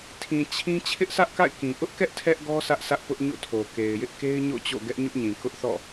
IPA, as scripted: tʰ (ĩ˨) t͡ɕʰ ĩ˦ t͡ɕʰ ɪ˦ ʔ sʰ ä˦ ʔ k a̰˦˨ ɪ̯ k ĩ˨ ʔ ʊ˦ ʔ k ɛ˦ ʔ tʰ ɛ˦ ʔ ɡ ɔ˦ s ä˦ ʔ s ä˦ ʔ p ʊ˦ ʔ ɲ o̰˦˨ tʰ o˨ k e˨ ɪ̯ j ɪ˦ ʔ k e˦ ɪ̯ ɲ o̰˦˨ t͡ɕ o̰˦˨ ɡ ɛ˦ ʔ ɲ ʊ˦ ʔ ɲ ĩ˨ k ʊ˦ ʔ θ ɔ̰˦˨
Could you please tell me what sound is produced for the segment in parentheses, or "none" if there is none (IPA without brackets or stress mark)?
ĩ˨